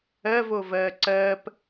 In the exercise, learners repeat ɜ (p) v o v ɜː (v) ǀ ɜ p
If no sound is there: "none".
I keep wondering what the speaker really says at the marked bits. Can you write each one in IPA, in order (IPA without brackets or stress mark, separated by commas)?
none, none